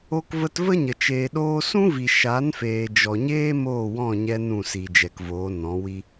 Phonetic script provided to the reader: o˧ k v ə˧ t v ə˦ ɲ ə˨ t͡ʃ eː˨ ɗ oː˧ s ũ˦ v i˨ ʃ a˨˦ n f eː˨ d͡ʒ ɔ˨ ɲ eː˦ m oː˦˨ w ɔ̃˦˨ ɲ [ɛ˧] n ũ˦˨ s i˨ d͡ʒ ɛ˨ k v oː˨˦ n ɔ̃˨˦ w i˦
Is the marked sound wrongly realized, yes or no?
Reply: no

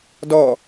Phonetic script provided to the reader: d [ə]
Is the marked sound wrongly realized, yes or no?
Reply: yes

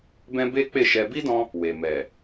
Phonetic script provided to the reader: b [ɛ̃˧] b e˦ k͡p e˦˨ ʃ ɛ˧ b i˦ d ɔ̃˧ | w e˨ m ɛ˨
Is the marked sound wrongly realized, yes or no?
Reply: yes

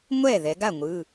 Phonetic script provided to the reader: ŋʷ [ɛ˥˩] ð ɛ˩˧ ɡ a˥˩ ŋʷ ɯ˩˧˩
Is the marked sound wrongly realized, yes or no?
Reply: no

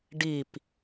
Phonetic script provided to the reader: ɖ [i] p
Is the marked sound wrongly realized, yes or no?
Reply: no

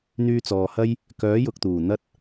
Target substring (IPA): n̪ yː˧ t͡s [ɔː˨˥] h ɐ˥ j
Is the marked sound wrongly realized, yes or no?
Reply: yes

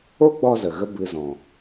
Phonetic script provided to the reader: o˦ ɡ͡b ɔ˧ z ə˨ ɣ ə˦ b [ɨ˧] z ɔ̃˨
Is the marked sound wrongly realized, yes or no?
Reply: no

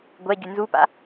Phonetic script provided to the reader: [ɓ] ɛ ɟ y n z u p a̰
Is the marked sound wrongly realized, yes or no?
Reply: yes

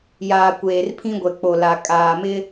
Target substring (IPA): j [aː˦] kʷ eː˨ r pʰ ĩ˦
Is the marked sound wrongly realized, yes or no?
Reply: yes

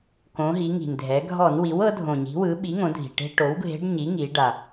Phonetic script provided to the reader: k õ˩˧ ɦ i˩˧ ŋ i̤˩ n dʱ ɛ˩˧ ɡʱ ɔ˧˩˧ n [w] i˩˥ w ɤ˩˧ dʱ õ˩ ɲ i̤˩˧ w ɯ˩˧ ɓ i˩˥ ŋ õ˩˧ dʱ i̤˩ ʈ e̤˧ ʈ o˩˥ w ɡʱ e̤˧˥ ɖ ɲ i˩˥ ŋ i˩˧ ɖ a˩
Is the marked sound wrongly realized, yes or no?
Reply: no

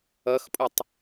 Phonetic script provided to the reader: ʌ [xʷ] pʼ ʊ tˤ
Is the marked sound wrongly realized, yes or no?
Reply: yes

